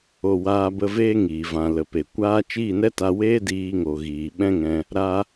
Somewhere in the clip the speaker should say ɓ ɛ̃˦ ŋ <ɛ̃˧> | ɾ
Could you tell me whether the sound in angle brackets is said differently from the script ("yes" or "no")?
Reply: no